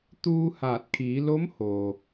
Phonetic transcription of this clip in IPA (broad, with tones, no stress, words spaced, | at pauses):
t̪uː˧ haː˧˩t̚kʰiː˩˧ lo˧˥mhoː˩